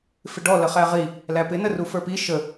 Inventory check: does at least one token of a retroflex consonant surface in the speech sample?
yes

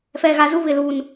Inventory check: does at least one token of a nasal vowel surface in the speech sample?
no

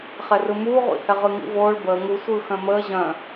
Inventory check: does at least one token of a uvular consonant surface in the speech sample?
yes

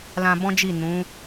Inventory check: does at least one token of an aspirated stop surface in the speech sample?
no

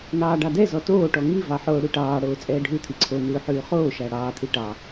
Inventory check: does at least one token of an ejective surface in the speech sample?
yes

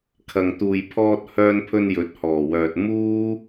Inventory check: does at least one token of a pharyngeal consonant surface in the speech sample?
no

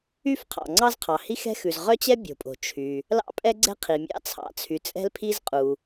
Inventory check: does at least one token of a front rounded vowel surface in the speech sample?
yes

